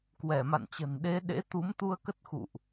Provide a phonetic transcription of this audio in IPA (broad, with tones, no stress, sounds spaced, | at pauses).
k w ɛ˧˩ m a̰˧˨ n t͡ɕ ə̤˨˩ n ɗ e˨˦ ɗ ḛ˧˥ t̪ u˨˦ m t̪ u˧ ə̯ k ə˦˥ t̚ x ṵ˧˨ ʔ